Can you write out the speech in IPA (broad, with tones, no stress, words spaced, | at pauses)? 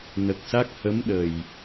nə˨˩k̚sa˦˥k̚ hə˧˥mɗə˨˩j